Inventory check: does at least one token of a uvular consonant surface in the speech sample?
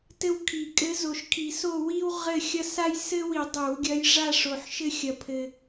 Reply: yes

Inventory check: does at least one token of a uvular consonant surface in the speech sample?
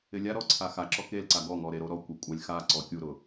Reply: no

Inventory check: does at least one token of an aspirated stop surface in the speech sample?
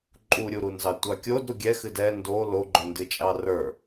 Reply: no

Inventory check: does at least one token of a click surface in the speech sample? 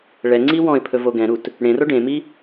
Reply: yes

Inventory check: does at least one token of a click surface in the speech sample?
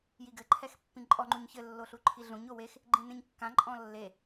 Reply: yes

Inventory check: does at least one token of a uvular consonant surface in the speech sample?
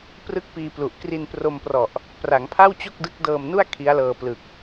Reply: no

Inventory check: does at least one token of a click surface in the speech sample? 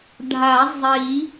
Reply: no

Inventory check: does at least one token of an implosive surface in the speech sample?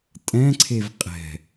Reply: no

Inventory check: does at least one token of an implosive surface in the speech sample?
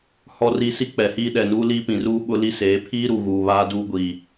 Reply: yes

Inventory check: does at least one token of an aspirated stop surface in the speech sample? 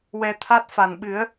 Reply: yes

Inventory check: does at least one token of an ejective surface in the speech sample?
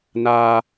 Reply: no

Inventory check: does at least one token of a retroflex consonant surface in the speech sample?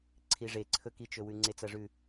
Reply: yes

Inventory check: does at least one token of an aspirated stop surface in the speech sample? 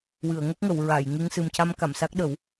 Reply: no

